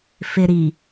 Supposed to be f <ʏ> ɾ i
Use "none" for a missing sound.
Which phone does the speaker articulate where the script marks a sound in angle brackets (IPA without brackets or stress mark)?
ɪ